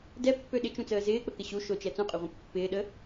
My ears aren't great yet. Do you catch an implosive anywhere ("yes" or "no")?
yes